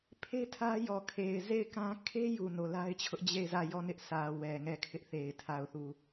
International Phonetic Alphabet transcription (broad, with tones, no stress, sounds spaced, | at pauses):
pʰ e˦ tʰ ä˦ j ɔ˨ kʰ e˨ ɪ̯ z e˦˨ ɪ̯ k ã˦ kʰ e˦ j u˨ n o˨ l a˦ ɪ̯ t͡ɕʰ ʊ˦ ʔ d͡ʑ e˦˨ ɪ̯ z ä˦˨ j ɔ˦˨ n ɪ˦ ʔ sʰ ä˨ w ɛ˨ ŋ ɛ˦˨ kʰ ɪ˦ ʔ θ e˨ ɪ̯ tʰ a˨ ʊ̯ θ u˨